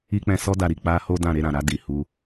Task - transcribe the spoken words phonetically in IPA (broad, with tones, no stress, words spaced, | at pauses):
i˦k͡pɛ̃˦˨ sɔ˧da˨ɾi˨ k͡pa˧ ho˦dã˦˨ ɾe˧ɾã˨ɾa˧ di˨hu˧